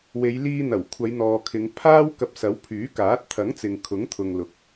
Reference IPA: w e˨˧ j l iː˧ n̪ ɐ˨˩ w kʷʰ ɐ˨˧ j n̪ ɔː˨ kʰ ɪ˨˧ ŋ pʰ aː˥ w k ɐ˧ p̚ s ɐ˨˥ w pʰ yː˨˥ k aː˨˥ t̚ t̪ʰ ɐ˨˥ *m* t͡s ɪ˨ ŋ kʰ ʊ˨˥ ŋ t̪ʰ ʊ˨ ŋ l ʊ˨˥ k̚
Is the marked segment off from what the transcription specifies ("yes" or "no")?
yes